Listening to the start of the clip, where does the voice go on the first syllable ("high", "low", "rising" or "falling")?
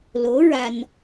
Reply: rising